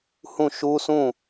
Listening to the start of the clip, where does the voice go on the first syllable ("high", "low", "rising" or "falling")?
falling